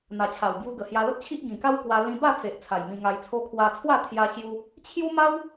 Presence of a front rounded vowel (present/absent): absent